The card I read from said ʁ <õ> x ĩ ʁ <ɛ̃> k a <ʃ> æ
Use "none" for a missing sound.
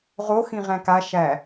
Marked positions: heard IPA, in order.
o, æ̃, ʃ

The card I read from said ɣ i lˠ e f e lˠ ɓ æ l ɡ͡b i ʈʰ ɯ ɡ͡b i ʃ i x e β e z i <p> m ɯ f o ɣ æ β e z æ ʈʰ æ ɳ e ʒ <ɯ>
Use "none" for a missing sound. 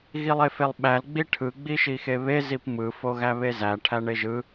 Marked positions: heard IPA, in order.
p, ɯ

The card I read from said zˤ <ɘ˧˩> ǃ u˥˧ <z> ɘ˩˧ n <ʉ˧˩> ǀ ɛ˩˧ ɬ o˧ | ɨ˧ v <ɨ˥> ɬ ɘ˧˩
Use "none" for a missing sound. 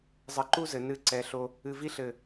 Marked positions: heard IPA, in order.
ɘ˧, z, ɨ˧˩, i˥

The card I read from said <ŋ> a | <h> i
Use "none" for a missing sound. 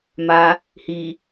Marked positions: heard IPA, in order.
m, h

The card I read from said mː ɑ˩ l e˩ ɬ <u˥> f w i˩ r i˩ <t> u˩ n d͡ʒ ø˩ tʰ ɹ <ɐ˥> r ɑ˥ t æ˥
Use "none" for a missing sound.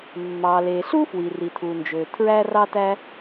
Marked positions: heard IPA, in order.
u˥, tʰ, æ˥

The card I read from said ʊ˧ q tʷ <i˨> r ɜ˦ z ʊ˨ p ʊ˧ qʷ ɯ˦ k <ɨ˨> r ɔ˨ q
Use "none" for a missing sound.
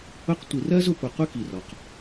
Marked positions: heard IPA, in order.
i˨, i˨

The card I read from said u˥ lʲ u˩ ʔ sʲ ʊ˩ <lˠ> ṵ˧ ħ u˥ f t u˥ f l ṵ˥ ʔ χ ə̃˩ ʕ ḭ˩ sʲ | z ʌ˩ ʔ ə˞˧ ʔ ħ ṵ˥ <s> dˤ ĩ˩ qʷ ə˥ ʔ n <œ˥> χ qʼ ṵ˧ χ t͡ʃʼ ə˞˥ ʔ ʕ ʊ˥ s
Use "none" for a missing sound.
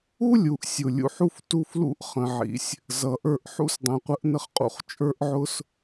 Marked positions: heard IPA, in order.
lʲ, s, ə˥

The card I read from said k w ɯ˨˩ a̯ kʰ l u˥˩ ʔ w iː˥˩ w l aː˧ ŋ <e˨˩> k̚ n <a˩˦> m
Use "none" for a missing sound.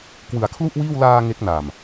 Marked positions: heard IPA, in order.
e˦˥, a˨˩

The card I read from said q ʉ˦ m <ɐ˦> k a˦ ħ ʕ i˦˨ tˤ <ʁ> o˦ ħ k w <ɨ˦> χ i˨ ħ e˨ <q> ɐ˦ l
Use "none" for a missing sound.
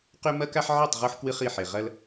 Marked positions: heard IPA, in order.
ɐ˦, ʁ, ɨ˦, ʁ

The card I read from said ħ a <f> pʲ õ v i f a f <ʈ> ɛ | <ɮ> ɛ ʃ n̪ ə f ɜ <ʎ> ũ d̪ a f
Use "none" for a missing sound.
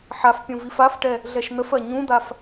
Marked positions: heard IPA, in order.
f, ʈ, ɮ, ɲ

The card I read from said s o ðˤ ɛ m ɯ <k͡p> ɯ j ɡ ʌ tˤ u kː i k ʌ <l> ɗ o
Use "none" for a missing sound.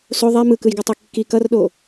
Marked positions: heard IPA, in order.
k, r

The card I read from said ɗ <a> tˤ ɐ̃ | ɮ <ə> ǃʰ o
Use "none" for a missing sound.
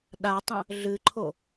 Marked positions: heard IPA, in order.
a, ɨ

